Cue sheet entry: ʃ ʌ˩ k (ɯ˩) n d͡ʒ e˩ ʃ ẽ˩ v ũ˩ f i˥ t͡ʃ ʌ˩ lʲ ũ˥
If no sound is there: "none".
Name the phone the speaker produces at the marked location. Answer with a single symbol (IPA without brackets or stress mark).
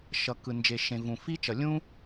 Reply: ɯ˩